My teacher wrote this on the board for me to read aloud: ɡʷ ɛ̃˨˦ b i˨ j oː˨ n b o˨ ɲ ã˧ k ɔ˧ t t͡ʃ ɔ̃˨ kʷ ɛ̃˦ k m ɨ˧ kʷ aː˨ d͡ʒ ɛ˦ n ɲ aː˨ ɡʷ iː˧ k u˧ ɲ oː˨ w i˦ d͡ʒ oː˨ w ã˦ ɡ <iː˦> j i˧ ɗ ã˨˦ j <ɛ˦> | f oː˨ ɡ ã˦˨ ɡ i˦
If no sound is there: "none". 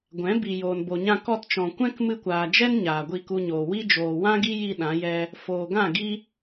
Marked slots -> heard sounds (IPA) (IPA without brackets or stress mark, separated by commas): i˦, ɛ˦